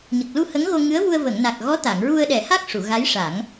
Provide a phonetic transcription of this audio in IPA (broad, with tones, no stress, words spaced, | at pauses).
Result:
ɲə˨˩k̚lu˧ hə˧˥ŋɣo˧ŋɨ˧˥ə̯vu˧ə̯ və˨˩˨ŋna˨˩k̚ɣɔ˧˥ t̪a˨˩˨ŋɹu˧ə̯ɗɛ˨˩˦ha˦˥k̚ ʂu˨˩˨ɣa˧˥jʂa˨˩˦ŋ